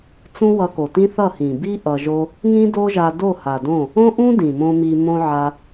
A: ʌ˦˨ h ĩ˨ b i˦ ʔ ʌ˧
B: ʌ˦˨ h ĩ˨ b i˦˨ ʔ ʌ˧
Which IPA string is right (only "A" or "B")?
A